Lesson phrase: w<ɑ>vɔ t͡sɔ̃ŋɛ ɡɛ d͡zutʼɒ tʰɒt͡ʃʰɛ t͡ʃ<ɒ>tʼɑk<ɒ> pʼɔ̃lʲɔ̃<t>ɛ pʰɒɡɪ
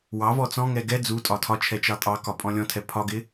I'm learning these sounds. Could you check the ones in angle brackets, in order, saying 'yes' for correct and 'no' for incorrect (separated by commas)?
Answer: yes, no, yes, no